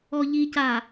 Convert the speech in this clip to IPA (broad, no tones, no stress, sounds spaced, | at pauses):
ɔ ʎ i c a